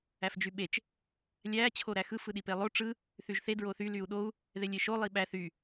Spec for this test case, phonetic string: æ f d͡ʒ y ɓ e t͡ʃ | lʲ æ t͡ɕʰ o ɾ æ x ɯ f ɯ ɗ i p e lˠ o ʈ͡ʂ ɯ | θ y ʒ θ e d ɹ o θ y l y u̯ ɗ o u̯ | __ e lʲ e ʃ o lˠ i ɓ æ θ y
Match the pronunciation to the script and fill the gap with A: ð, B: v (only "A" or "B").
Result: A